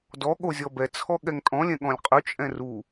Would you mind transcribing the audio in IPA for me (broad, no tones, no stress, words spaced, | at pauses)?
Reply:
dɔ ɠozʲɔbɛ t͡sʰɔɠɛŋtʼɔ̃ lʲɛ̃ɠɔ̃lʲqʼy t͡ʃʼɛ̃ru